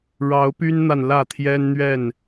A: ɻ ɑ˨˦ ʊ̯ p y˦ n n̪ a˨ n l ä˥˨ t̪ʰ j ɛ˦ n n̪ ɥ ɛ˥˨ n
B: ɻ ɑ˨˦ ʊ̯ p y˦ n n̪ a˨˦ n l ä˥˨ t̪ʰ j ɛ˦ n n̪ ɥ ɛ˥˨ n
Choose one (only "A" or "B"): A